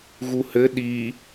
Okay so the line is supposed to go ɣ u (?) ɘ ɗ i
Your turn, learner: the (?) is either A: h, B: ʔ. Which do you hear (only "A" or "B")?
A